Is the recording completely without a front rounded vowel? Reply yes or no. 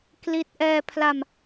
yes